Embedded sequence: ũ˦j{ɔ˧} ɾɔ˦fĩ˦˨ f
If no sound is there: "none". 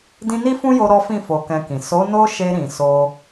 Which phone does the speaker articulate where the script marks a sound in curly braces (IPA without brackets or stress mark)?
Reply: o˧